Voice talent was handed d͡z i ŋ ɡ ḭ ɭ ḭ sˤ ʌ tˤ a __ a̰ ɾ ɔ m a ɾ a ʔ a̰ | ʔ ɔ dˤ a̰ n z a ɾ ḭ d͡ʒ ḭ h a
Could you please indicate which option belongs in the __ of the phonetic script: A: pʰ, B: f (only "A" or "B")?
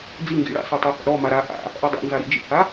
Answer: B